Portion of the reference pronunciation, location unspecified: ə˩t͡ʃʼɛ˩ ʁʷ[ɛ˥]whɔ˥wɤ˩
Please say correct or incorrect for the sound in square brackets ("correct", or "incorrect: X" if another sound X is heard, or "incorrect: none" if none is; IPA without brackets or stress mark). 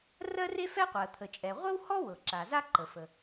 incorrect: ə˥